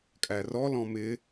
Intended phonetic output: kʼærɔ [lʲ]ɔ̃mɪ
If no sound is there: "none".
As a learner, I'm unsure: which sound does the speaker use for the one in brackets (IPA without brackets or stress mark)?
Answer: l